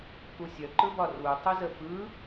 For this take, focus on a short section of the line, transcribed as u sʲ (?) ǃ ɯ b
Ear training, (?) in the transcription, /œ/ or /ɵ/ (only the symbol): œ